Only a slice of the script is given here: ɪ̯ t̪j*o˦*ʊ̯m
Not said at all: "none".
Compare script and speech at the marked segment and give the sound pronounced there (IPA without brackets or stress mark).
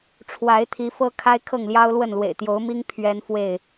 o˨˦